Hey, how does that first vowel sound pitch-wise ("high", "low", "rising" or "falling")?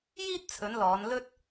high